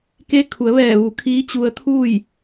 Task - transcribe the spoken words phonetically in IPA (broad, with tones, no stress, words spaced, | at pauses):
ke˧˥kʰu˩˧ə̯ʋɛː˧˩ ʋu˩˧ kʰiː˧˥t͡ɕu˧ə̯t̪ʰuː˥˨j